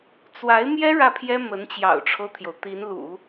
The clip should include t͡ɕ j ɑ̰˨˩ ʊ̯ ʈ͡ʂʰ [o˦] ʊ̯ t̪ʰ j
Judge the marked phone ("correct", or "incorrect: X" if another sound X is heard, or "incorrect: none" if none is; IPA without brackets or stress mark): correct